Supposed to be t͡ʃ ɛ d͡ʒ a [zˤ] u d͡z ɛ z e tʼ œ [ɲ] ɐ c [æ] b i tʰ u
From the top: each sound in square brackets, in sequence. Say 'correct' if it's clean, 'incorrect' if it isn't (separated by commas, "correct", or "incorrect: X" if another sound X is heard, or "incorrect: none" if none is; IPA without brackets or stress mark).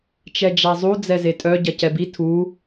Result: correct, incorrect: ɟ, incorrect: ɛ